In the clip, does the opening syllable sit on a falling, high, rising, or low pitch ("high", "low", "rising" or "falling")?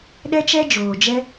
high